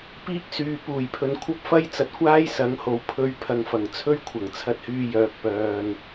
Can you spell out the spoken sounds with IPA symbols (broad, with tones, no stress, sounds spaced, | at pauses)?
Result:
p iː˥ k̚ s yː˨ p uː˨˩ j pʰ ɵ˨˧ n kʷʰ ɐ˥ p̚ f ɐ˥ j t͡s ɐ˨ t̚ kʷ aː˥ j s ɐ˨˥ ŋ h o˨˧ w pʰ ɵ˧ ɥ pʰ ɐ˨˧ ŋ f ɐ˨˩ ŋ t͡sʰ ɵ˥ ɥ kʷʰ ɐ˨˩ ŋ t͡sʰ ɐ˧ t̚ h yː˧ j œː˨ k̚ p œː˨ n